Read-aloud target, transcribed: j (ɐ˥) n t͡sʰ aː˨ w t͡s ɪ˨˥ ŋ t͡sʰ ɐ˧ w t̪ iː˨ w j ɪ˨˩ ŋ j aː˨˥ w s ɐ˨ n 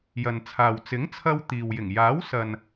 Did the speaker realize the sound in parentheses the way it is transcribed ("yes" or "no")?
no